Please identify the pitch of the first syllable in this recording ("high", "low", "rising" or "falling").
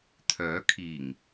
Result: rising